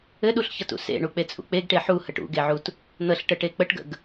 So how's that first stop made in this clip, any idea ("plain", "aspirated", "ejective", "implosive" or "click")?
implosive